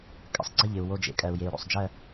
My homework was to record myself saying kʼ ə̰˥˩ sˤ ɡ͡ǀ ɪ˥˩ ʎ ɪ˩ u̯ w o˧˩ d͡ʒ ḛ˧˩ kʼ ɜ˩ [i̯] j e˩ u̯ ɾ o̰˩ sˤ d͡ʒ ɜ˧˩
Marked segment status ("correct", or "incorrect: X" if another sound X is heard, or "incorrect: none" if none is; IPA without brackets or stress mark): incorrect: u̯